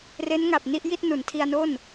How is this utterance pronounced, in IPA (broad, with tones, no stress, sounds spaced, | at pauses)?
r e˦˥ n ŋ a˨˩ p̚ n i˥˩ ʔ j i˥˩ t̚ n u˩˦ n tʰ i˧ a̯ n o˥˩ n